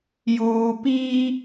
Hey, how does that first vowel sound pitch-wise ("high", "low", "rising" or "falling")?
low